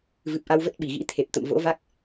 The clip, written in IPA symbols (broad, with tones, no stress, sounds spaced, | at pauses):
v ɨ˨˩ p̚ ʔ a˧ w v ə˦˥ t̚ ɓ i˧˩ ɣ ḭ˧˥ t̪ʰ e˨˩ p̚ t̪ ə̰˧˨ m v o̰˧˥ v a˦˥ k̚